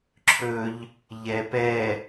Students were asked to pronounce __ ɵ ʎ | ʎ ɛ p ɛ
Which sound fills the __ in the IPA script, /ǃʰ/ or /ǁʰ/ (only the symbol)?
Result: ǁʰ